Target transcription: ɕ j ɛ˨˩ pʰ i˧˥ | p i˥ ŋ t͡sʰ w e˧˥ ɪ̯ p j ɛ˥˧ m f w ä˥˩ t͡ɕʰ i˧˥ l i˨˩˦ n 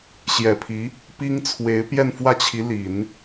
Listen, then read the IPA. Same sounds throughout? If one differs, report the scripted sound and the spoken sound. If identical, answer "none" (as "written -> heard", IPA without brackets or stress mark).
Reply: m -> n